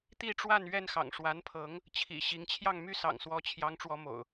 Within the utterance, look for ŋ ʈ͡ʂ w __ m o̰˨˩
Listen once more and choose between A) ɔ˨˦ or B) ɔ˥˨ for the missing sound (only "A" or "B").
A